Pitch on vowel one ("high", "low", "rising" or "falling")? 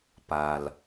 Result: low